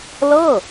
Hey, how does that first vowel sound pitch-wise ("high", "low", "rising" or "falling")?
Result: falling